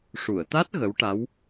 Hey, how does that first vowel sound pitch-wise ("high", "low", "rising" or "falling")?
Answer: low